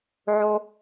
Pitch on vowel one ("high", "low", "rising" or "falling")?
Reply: low